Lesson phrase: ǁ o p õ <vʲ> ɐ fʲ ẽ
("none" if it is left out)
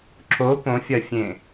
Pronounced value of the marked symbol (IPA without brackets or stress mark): fʲ